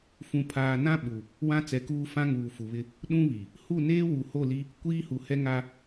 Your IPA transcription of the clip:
f ũ˨ pʰ aː˨ n ã˦ ɓ u˨ | w ã˦ t͡s ɛ˨ k uː˦ f ã˦ ŋ uː˨ f u˨ β ɪ˦ | ɗ ũ˦ β i˨ | h u˦˨ n eː˦ w u˨ h o˦˨ l i˦ | kʷ iː˦ h u˨ h ɛ˦ ŋ a˦

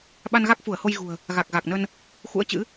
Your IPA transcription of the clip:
ɓ a˧ n ɣ a˦˥ k̚ f u˧˩ ə̯ h o˧ j ɣ ṳ˨˩ ə̯ | ɣ a˨˩ k̚ ɣ a˨˩ k̚ n ə˧ n | x ṵ˧˥ ə̯ t͡ɕ ɨ̰˧˥

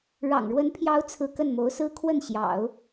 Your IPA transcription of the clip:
ɻ ɑ̰˨˩ ŋ ɻ w ə˧˥ n pʰ j ɑ˧˥ ʊ̯ t͡sʰ ɹ̩˥˧ k ə˥˩ n m o˧˥ ʊ̯ s ɹ̩˥ kʰ w ə˥˩ n ɕ j ɑ̰˨˩˦ ʊ̯

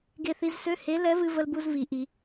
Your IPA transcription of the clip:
ɡ e˧ θ i˧ z s ø˧˥˧ h e˧˥ l ɛ˧˥ v ɨ˧ v ə˧ l b u˧ z v i˧˥ ʔ i˧˥

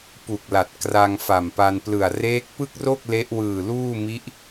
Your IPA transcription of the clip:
p u˨˩ k̚ l a˨˩ t̚ k r a˧ ŋ f a˨˩ m p a˧ n p l ɯ˨˩ a̯ r eː˦˥ k̚ p ɯ˥˩ k̚ r o˥˩ k̚ l e˦˥ ʔ w ɯː˨˩ l uː˥˩ m i˦˥ ʔ

